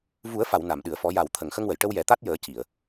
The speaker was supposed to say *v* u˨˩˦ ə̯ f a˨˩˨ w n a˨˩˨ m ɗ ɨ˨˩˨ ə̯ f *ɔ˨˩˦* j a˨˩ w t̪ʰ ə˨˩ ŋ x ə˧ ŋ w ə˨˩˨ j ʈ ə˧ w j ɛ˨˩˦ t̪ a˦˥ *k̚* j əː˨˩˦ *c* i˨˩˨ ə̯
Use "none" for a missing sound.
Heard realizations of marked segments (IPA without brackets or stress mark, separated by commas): v, ɔ˨˩˦, t̚, c